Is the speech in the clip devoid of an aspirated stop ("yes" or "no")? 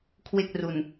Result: no